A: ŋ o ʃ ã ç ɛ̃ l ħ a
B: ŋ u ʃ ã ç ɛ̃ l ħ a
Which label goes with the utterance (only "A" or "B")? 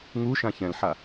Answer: B